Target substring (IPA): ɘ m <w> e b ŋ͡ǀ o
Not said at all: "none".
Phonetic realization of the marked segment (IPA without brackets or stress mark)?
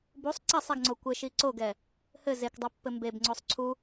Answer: b